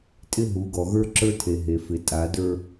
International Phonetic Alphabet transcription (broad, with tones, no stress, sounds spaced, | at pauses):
tʼ ɪ˦ ɦ u˨˦ ɡ ɔ˨ ɣ ə˞˦ ǁ ə˞˦ tʰ e˨ ɦ e˨ f ɪ˨ tʼ a˨˦ d ə˞˦